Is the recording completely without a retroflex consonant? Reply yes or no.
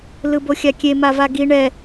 no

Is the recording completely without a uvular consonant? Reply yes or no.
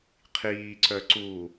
no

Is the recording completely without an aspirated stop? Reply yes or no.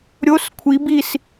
no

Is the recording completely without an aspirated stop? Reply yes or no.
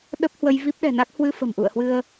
yes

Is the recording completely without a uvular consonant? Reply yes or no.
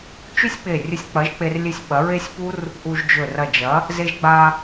yes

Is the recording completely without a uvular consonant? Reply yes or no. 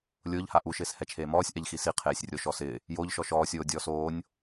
no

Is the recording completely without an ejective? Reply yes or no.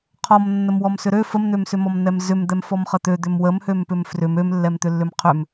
yes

